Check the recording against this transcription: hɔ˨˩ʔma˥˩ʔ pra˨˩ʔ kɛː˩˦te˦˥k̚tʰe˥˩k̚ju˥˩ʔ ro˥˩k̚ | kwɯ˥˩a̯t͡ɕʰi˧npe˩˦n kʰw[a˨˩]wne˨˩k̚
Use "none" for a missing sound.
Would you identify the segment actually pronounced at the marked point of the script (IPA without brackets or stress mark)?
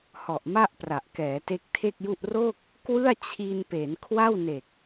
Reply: a˥˩